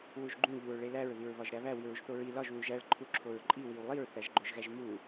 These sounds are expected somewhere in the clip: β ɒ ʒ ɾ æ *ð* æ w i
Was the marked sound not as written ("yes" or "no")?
yes